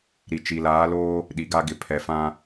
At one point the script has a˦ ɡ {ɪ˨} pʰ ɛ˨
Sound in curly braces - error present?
no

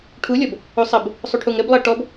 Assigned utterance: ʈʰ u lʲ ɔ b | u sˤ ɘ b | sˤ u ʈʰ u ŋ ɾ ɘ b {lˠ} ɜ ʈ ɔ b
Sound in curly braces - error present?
no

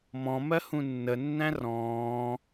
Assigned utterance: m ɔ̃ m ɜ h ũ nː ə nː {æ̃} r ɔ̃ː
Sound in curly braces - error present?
no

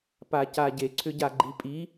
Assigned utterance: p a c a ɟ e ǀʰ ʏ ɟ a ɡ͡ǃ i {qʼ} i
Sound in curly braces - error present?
yes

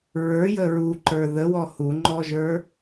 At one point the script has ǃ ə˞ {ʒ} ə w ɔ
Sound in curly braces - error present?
yes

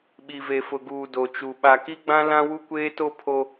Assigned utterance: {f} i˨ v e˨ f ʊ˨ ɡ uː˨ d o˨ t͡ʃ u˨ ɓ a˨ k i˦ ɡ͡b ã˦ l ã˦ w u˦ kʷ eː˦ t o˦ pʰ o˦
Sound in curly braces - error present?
yes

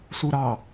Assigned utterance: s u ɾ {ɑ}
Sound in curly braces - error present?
no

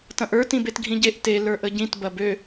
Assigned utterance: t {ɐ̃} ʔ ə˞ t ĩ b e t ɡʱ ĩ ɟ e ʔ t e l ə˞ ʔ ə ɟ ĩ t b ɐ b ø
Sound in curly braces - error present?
no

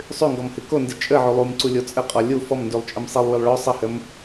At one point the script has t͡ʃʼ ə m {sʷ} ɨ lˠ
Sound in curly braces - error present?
yes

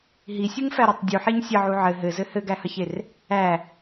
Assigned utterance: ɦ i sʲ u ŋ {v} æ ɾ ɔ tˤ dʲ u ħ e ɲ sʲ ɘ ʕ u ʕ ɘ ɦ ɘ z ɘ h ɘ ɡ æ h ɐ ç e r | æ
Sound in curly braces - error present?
yes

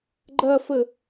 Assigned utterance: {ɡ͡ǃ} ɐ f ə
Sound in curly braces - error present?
no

